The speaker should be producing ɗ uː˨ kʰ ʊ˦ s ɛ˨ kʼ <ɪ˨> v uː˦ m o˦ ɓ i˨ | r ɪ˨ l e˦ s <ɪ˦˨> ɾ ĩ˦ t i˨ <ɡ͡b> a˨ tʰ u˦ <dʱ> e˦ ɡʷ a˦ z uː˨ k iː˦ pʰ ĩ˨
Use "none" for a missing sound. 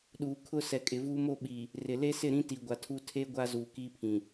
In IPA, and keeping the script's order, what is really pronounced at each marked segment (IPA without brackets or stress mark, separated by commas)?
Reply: ɪ˨, ɪ˦˨, ɡʷ, tʰ